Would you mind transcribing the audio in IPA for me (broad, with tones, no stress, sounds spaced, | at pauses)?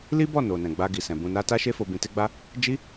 l i˦ b ɔ˦˨ n o˨ n ɛ̃˨ ɡ͡b a˧ ɡ i˨ s ɛ̃˨ b ũ˧ n a˦ t a˦ ʃ e˦ f o˧ b ĩ˧ t e˦ ɡ͡b a˦ | d͡ʒ i˦